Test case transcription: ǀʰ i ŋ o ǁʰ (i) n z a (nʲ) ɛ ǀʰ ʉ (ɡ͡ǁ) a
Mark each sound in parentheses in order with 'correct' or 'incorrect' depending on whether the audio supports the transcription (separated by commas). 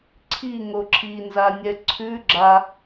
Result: correct, correct, correct